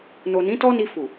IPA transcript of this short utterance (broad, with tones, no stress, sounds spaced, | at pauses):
n o˨ n ĩ˨˦ t ɔ˦ n i˧ f u˨